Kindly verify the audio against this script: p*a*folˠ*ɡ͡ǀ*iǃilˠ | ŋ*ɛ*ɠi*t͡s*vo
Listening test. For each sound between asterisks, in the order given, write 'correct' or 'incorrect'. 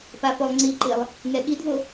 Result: correct, incorrect: ŋ͡ǀ, correct, incorrect: d

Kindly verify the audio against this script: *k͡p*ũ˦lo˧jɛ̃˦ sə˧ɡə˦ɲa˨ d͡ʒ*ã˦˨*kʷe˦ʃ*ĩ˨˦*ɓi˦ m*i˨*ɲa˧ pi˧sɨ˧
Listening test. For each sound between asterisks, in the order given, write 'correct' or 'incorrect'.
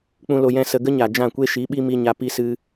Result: correct, correct, incorrect: i˨˦, incorrect: i˧

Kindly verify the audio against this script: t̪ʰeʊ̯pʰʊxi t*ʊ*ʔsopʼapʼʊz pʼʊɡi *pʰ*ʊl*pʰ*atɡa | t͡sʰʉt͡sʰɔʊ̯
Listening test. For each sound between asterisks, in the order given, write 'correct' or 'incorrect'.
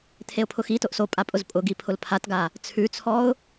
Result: correct, correct, correct

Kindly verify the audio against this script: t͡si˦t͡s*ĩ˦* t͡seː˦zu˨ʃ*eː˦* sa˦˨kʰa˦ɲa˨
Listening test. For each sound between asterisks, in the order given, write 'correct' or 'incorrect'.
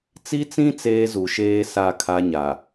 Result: correct, correct

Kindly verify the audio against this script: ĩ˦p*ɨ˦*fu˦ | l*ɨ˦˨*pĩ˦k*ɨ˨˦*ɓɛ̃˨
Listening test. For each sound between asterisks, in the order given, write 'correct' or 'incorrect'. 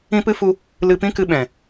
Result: correct, incorrect: ɨ˧, incorrect: ɨ˧

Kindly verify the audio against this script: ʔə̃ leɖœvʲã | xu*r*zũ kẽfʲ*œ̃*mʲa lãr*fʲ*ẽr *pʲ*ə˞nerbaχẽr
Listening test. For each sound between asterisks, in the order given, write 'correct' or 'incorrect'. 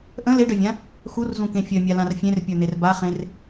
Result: correct, incorrect: œ, correct, correct

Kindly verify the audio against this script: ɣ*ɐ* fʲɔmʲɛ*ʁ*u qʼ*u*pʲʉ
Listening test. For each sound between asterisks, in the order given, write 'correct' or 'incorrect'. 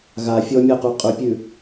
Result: incorrect: a, incorrect: q, incorrect: ʉ

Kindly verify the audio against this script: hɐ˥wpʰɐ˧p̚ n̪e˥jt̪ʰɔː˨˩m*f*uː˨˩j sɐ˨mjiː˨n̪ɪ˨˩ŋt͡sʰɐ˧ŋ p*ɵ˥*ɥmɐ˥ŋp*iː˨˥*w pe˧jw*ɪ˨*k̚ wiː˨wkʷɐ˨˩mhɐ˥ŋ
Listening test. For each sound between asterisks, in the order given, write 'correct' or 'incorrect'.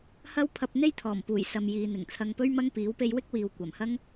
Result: incorrect: p, correct, correct, incorrect: ɪ˥

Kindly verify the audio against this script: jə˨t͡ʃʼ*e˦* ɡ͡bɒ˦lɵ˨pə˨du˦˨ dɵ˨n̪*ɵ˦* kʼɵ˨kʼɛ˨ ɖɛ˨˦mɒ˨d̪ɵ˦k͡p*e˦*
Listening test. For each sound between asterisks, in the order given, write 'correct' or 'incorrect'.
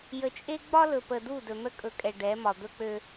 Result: correct, incorrect: ə˦, incorrect: ø˦

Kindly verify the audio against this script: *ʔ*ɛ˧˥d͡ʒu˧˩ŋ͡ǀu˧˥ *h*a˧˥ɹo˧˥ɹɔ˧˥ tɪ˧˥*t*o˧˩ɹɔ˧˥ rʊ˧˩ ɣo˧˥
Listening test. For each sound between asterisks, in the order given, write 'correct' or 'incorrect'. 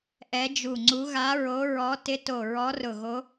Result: correct, incorrect: ɣ, correct

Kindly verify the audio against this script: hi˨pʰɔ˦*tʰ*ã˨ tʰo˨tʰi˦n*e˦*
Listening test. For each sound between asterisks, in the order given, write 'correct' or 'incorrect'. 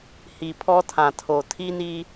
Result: correct, incorrect: i˦

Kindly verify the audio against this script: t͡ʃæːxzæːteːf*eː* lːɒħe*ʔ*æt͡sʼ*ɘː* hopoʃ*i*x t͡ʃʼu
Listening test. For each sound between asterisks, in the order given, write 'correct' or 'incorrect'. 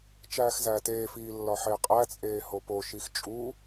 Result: incorrect: iː, incorrect: qʼ, incorrect: eː, correct

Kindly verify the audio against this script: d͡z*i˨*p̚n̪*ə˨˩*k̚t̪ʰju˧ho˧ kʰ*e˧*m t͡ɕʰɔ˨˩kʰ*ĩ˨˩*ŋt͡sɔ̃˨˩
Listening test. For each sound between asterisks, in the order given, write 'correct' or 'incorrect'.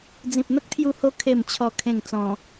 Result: incorrect: ĩ˨, incorrect: ə˦, incorrect: e˨˩, incorrect: ẽ˨˩

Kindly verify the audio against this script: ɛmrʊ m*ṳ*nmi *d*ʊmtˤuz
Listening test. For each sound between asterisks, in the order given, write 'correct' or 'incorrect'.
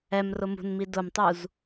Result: correct, correct

